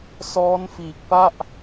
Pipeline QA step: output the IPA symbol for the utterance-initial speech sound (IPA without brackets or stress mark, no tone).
s